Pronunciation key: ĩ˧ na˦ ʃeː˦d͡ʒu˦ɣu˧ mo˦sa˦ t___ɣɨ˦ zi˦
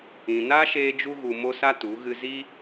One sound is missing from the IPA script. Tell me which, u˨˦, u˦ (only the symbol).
u˨˦